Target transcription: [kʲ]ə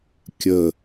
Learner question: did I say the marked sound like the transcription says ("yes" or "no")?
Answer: yes